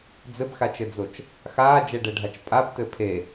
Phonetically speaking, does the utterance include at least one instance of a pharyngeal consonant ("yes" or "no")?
no